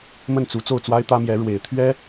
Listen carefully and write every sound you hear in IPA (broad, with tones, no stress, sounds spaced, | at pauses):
m ə˥˩ n t͡s u˧˥ t͡s o˥˩ ʊ̯ t͡s w a˥ ɪ̯ t̪ ä˥ m j ɛ˧˥ ɻ w e˨˩ ɪ̯ t̪ʰ ɥ ɛ˥